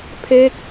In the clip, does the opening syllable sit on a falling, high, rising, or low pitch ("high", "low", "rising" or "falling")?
falling